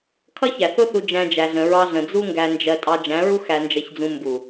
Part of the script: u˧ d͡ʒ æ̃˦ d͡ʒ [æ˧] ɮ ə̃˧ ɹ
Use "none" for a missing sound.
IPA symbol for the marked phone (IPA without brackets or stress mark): æ˧